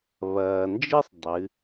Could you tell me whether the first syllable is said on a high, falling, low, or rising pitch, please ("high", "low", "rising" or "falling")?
low